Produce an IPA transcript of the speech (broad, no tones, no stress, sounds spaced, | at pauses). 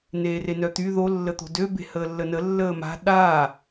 n eː r e n œ t̪ y ð o lː ə t̪ o̤ d ø b e̤ h əː lː ə n ə lː əː m a̤ ɗ a